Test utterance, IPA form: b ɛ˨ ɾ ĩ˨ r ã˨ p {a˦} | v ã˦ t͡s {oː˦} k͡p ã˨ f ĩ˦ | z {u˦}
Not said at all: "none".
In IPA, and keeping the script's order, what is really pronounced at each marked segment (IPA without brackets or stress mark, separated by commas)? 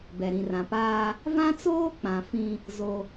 aː˦, oː˦, o˦